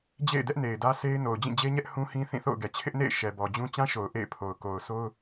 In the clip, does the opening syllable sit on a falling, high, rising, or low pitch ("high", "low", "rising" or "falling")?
falling